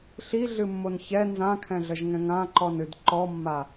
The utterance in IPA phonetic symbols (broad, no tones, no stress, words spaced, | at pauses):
ɬiɮɨmːon çɛ nzãkʰɛ̃ɮəʒŋɛ̃ ŋãǃɔnɨd ǃɔmːa